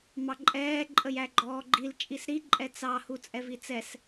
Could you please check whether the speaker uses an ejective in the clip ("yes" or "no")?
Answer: yes